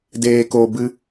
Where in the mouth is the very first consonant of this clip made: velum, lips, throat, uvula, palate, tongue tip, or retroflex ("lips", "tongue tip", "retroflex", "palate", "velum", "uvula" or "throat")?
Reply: tongue tip